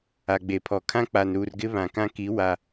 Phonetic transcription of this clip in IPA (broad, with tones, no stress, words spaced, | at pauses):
a˨ɡ͡be˨pʰɔ˨kʰã˦ k͡pa˨nɾuː˨rɡɪ˦ βã˨kã˦ki˨˦ wa˨